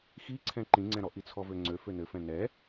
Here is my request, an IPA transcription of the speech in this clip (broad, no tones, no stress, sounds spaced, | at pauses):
x i ǀʰ ɛ̃ ǃ ĩ ŋ͡ǀ ɛ̃ ɾ ɔ ʔ i t͡sʰ ɔ v ø ŋ͡ǀ ø f ø n ɘ f ɛ̃ n ɛ